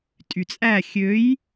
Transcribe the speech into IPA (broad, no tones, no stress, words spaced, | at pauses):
tʼyt͡sʼæ xʲøj